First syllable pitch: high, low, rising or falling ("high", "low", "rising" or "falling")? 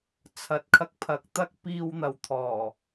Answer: rising